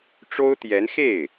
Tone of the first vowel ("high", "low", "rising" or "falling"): high